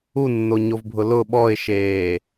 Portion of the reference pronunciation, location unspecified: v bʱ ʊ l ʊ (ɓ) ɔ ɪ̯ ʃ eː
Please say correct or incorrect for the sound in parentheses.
correct